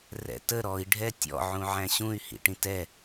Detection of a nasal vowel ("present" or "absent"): present